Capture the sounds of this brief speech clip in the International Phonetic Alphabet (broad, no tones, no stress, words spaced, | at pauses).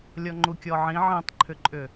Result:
lʲɔŋ͡ǃukʲɔʕĩ ʕĩtˤǃʰʏǃʼʏ